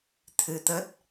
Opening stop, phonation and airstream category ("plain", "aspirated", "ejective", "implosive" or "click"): aspirated